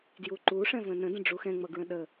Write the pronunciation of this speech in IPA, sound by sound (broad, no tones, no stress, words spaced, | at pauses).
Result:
djuǃu ʂɛ̃və̃nə̃ də̃ɖ͡ʐuxɛ̃ ŋ͡mʌɡɹə̃ɗə